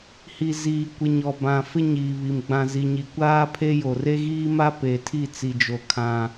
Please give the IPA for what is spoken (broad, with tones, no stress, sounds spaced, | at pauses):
h i˨ z iː˨ kʷ ɪ˨ ɲ ɔ˨ b ã˨ f ɪ˦ ɲ iː˨ β i˨ m ɡ͡b ã˨ z i˨ ɲ i˨ kʷ aː˦ pʰ e˦ j o˨ r e˦ ɣ iː˦ m a˦ p e˨ tʰ i˦˨ t͡s i˨ d͡ʒ o˨ kʰ ã˦